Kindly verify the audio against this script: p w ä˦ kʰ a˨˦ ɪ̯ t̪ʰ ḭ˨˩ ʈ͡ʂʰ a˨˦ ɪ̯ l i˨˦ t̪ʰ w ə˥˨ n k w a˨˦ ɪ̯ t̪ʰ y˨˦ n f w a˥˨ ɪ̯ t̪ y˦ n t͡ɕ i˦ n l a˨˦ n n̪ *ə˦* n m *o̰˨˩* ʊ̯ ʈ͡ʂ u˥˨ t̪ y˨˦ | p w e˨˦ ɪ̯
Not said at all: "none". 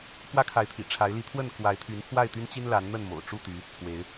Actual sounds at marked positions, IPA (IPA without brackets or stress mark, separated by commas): ə˥˨, o̰˨˩